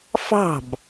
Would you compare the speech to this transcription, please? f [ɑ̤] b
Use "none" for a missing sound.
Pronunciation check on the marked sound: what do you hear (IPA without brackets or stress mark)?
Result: ɑ̤